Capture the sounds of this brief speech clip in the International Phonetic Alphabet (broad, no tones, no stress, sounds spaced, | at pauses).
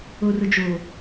o r ʊ d͡ʒ o